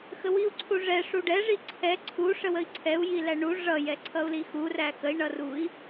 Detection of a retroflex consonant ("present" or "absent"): present